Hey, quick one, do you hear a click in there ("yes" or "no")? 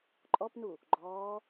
yes